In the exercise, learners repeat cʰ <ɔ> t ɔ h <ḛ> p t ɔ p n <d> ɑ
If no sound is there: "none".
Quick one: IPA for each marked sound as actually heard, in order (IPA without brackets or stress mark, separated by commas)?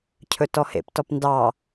ɵ, ḛ, d